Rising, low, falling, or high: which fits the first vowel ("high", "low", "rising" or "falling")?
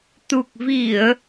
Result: low